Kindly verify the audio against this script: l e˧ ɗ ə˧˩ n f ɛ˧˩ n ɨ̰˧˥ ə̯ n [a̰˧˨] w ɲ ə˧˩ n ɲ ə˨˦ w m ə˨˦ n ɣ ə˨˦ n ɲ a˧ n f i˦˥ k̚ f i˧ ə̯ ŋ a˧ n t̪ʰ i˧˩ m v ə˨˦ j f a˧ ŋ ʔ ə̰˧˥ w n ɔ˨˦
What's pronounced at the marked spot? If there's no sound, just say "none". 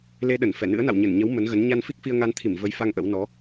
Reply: a̰˧˨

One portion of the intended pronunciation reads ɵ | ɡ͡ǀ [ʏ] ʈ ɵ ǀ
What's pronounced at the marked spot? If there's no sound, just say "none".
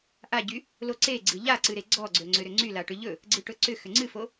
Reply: ɨ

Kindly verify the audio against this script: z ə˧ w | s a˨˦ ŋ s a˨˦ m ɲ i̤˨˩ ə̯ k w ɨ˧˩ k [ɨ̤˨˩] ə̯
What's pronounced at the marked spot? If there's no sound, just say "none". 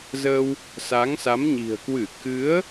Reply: ɨ˨˦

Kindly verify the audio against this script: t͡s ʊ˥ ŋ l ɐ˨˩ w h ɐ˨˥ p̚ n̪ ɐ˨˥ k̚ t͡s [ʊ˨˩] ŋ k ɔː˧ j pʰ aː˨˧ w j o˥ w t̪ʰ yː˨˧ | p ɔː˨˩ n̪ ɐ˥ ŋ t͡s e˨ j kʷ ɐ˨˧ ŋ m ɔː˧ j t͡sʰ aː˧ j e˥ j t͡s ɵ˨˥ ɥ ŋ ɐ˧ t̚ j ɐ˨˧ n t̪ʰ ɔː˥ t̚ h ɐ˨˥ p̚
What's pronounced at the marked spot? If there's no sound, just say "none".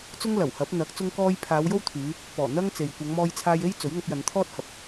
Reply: ʊ˧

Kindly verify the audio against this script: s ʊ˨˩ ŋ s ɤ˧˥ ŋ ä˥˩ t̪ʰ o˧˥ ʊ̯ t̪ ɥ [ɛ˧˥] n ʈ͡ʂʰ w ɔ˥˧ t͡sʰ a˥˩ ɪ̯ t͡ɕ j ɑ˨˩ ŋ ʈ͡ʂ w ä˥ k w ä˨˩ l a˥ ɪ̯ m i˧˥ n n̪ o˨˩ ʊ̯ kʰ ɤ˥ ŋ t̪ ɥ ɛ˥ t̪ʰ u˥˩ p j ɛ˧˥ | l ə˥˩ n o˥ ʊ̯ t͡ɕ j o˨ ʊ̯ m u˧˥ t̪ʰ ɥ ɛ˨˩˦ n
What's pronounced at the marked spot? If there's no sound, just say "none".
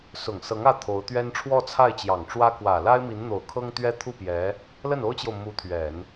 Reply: ɛ˥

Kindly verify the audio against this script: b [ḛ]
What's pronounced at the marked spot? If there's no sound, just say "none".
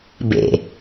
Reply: ḛ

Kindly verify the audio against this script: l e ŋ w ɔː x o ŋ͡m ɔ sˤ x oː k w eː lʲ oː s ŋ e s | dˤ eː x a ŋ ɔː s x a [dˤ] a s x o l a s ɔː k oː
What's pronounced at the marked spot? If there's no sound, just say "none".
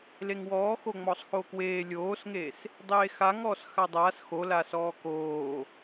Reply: dˤ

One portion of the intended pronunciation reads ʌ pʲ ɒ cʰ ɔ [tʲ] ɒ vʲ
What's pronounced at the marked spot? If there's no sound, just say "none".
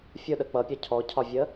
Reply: cʰ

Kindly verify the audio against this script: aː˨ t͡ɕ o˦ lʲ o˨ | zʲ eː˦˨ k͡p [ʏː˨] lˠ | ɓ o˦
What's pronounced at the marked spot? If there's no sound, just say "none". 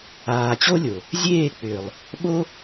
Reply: ʏː˨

